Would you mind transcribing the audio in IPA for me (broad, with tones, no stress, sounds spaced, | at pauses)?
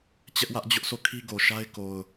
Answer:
t͡ɕ ɛ˦ ʔ w ä˦ ʔ d͡ʑ ʊ˦ ʔ s o˦˨ kʰ i˦ ɡ o˨ ʃ a˦ ɪ̯ k o˨ ʊ̯